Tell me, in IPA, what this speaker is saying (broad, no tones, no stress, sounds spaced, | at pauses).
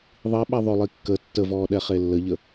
ðˤ i ɓ ɛ ðˤ ø lˠ i kː ə tː ə v ɔː ɗ ɛ χ e lː ə ʎ ə